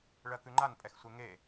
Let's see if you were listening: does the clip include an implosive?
no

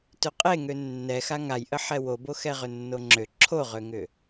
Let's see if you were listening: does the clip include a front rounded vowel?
yes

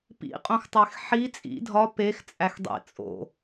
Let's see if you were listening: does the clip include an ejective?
yes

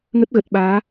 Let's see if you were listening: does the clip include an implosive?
yes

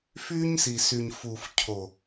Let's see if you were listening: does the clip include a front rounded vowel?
yes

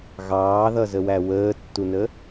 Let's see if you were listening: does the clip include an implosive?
no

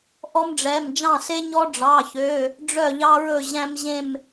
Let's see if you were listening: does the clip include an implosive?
no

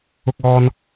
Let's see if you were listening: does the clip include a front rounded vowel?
no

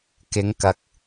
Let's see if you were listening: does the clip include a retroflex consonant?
no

